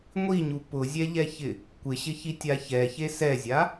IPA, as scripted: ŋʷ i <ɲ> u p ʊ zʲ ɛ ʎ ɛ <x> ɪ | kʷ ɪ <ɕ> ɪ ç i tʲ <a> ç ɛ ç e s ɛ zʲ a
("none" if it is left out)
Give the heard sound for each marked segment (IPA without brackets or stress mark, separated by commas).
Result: ɲ, ç, ɕ, a